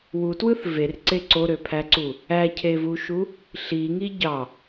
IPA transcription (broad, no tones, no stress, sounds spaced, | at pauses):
w u t w ɯ θ v e r ǀ e ǀ o ɾ ø pʰ æ ǀ u | æ cʰ e v u ʃ u | ɬ i ŋ i ɟ ɑ